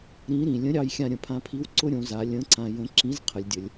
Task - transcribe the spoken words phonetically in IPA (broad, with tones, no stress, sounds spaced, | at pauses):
ɾ ĩ˧˥ ɾ ĩ˩ lʲ ə̃˧˥ ɾʲ ɑ˧ j xʲ ã˧ ɾʲ ə̃˩ pʰ ã˧ pʰ i˧˥ w ǀ ʊ˥ ɾʲ õ˩˧ z a˩˧ lʲ ə̃˧˥ ǀ ã˧ j ə̃˧˥ ǁ ĩ˧˥ z qʰ ə˩˧ lʲ dʲ ə˩˧ lʲ